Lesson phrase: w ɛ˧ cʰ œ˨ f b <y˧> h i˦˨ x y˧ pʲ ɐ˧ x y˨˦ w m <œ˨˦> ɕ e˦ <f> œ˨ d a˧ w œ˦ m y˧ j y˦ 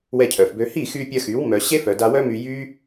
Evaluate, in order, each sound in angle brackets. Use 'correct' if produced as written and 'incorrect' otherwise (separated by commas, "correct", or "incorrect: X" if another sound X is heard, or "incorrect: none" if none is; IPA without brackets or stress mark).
incorrect: ø˧, incorrect: œ˧, correct